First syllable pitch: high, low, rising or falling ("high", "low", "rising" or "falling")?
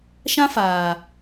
high